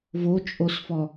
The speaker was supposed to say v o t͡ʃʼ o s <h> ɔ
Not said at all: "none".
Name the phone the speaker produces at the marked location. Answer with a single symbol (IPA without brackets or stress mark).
f